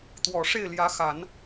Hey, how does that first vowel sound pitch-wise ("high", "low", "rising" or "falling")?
low